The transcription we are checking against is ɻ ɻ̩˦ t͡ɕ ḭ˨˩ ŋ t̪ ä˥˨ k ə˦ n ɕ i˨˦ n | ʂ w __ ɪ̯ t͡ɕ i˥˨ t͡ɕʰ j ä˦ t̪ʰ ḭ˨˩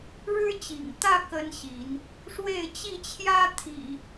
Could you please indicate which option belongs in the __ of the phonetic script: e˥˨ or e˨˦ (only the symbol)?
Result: e˥˨